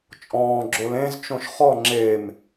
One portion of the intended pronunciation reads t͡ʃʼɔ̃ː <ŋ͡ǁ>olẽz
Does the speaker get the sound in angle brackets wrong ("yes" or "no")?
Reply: yes